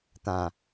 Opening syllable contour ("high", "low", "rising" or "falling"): low